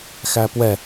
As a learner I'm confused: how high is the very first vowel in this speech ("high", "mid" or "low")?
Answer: low